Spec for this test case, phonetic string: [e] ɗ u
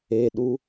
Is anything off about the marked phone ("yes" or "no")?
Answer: no